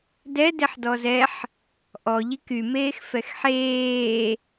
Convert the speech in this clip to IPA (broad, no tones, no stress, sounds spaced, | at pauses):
d ɛ d e ħ d ɔ z ɛ ħ | ʔ ɔ ʎ i k y m eː x f ɛ x ħ eː